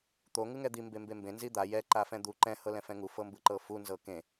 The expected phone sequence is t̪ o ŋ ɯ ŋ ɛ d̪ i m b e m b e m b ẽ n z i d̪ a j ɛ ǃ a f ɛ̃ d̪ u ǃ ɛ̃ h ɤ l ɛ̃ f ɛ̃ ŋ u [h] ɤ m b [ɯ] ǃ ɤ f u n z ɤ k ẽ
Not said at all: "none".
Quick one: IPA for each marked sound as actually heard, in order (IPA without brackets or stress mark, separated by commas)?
f, ɯ